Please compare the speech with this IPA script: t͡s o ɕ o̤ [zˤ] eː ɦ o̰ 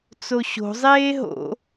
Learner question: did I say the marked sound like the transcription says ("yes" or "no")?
yes